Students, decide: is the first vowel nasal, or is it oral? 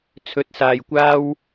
oral